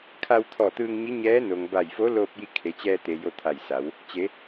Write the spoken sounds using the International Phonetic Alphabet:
kʰa˧wt̪ʰɔː˧˩t̪ɯː˧ŋɲi˧˥ ɲɛː˧˥no˩ŋ ba˧˩jfo˧˥loː˧p̚ji˧ kʰe˩˧t͡ɕɛː˧t̪e˩ jo˧t̪ʰa˧˩jsa˩˧w | t͡ɕe˩˧

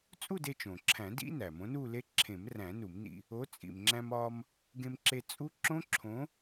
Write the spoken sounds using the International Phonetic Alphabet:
t͡sʼu˥˧de˧t͡ʃõ˩ǁʰæ̃˨˩˦ dḭ˦˥ næ˩mõ˨˥nu˥˧le˦˥ ǁʰẽ˨˩˦mræ̃˨˩˦ nu˨˩˦mnḭ˧ | o˨˥ t͡sʼḭ˩mŋ͡ǁæ̃˧mɒ˧m | ɡẽ˧mǁe˧ t͡sʼu˦˥ ǁõ˦˥ǁʰõ˨˥

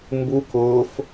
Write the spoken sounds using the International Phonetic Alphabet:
mbu kʊːf

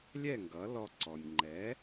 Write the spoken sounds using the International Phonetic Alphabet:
lʲɛ˥˩ŋɡʌ˩˥lɔ˧ ǀɔ˩nʲŋ͡ǃɛ˩˥

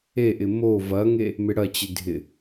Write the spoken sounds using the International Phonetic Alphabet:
eʔɪ mo vɐŋe | mɪɽɐt͡ɕɪ dʱɪ

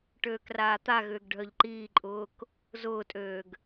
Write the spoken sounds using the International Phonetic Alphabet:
ʈøːkraːt̪aɣʏːɡ ɖʱœʎǃiːǃʼʊːk | zʊːtʼøːɡ

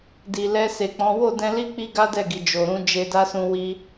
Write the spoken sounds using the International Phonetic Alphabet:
di˨lɛ˧se˨k͡pɔ̃˨˦ wo˦˨dɛ̃˧ li˦ k͡pi˦ɡa˦dɛ˦˨ɡi˨ d͡ʒo˨ɾũ˨˦ d͡ʒe˧da˦sũ˧ wi˧

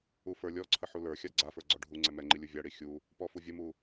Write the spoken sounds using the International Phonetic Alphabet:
ufə˞lʲɔǀʰə ħulə˞xʲa ɡ͡ǀafə˞ ɡ͡ǀɔɖʱuŋ͡ǀɛ mɛŋ͡ǃi lʲuvʲaɽi xʲu | pɔfuvʲəmu

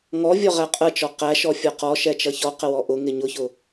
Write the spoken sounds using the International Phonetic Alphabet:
ŋɔvʲɔ ʁæqʼət͡ʃɔ qæʃɔ fʲɒqɔ ʃɛt͡ʃʌçɔqə wɔʔʊ ŋɪɲʊçʊ

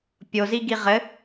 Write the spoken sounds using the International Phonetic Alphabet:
pʲozi ɡiʁɘ

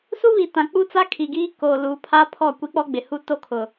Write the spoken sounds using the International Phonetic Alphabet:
su˦βi˨tã˨ k͡pu˦t͡sa˦kʰi˨ɡiː˦ koː˨luː˨pʰa˦ pʰɔ˦˨ kʷi˦k͡pɔ˦ɡ͡bɪ˨hu˦ to˦kʰʊ˨

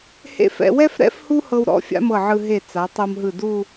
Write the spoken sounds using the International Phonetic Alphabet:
hḛ˥˧f ɛ̰˧wɛ˥fɾɛ̰˥f hu˥hɤ˧wɾɔ̰˥˧ fʲa̰˥mɤ˧˩ʕɯ˧ ɦe˧˩ t͡sa˩˧tˤo˧m ɦɯ˧˩du˥˧

